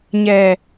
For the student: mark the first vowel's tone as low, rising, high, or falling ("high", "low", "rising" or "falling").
low